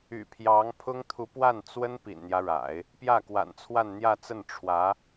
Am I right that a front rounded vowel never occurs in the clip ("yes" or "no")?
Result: no